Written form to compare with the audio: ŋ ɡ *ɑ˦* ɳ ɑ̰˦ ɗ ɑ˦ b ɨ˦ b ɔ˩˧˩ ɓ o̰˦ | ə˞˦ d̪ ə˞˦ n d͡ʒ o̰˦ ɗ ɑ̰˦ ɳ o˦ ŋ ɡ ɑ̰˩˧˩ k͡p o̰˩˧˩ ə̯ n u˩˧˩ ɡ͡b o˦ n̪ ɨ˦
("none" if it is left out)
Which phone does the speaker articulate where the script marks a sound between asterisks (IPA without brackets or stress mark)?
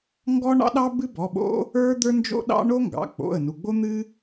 ɔ˦